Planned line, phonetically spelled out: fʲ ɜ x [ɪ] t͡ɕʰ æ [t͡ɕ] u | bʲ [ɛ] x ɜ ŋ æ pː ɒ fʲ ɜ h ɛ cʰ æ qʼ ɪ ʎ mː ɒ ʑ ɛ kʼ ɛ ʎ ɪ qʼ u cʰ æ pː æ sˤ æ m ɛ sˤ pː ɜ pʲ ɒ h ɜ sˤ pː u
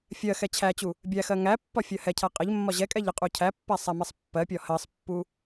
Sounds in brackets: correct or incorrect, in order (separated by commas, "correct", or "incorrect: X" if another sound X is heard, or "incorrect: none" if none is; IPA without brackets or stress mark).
incorrect: ɛ, correct, incorrect: æ